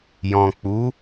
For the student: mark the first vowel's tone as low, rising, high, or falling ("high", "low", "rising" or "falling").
low